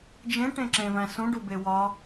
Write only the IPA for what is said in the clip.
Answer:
d͡ʒ ẽ ʈ ẽ ǁ ẽ v æ̃ s ũ ɖ u b e w ɒ

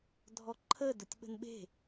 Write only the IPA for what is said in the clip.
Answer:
dʱ ɔ ǃʰ ə d ʊ tʲ ɓ ə̤ n ɓ e̤

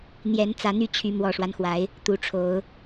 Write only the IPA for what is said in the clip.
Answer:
n̪ j ɛ˨˦ n t͡s ä˨˦ n̪ y˦ t͡ɕʰ y˨˦ m w ɔ˨˩ ʂ w a˦ n x w a˨˦ ɪ̯ | t̪ u˨˦ ʈ͡ʂʰ o˨˦ ʊ̯

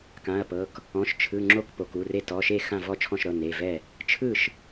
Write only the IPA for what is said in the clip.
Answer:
k ã˩˧˩ ɐ̯ p ɤ˩˧˩ k | ɔ̃˩˧˩ ʃ t͡ʃʰ ɯ˩˧˩ ŋ͡ǁ o˥˩ k p o˩˧˩ k u˩˧˩ r e˥˩ t ɔ˩˧˩ ʃ e˥˩ x ã˥˩ v ɔ˥˩ t͡ʃʰ ɔ̃˥˩ ʃ ɾ ɤ˩˧˩ n e˩˧˩ v ɛ˥˩ | t͡ʃʰ ɯ˥˩ ʃ

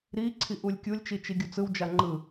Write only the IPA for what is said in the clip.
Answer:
ɾ i ǀʰ i ʔ u lʲ kʲ u lʲ t͡ʃ i t͡ʃ i ɡʲ u t͡s ɯ w d͡ʒ a ŋ͡ǃ ɯ

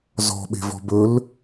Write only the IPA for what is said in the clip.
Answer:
z ɔ̤ ɓ e̤ v ɔ̤ b ɵ l

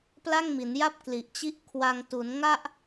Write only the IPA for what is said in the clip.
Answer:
p l a˥˩ ŋ m i˩˦ n j a˥˩ p̚ k l i˨˩ ʔ t͡ɕ i˥˩ ʔ kʰ w a˧ ŋ t u˩˦ n ŋ a˥˩ ʔ

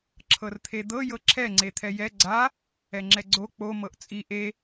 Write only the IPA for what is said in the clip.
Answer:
ǁʰ ɤ r t̪ʰ e d̪ ɤ j ɤ ǁʰ ɛ ŋ͡ǀ e t̪ʰ ɛ j ɛ ɡ͡ǀ a | ɛ ŋ͡ǁ ɛ ɡ͡ǀ o k͡p o m ɤ ʔ t͡sʼ i ʔ e

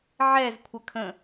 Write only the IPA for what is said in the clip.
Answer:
ʕ ɛ z kʷʰ ə kʰ ə̃

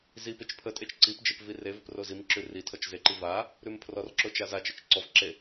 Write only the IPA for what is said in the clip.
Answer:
z i p e t͡ʃ pʰ ə tʼ e t͡ʃ ǀ i p d͡ʒ e p v i r e v ə p r o z i m ǁ ʉ r i tʰ ɔ t͡ʃ z e ǃ i v a | ɾ ʉ m pʰ r ɔ r ǁ o t͡ʃ a z a t͡ʃ ə t͡ʃ ǀ ɔ v ǁ e

